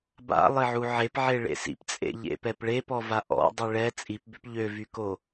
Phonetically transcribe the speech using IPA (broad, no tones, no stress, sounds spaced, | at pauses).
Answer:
b a̰ lˠ e ʕ u ʕ e p ʕ e ɭ ḛ s ḭ p t͡sʼ ḛ ʎ ḛ p ɛ p ɭ e p ɔ v a ʔ ɔ̰ dˤ y ɭ ɛ t͡sʼ i p b ø p ʎ ø v y k o